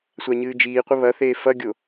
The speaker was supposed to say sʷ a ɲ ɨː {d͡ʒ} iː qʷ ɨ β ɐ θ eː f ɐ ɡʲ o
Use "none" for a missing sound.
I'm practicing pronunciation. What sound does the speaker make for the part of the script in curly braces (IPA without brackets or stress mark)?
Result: d͡ʒ